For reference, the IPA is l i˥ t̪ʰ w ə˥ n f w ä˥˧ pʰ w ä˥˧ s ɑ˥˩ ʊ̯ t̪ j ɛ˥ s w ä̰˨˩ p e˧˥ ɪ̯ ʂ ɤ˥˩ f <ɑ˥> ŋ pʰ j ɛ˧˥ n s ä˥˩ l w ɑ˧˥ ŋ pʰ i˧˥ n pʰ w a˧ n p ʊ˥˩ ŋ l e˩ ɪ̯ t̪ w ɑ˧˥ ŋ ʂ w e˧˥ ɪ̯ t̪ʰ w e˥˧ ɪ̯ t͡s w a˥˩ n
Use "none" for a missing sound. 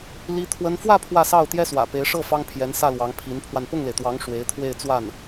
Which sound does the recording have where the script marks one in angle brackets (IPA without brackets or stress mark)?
ɑ˥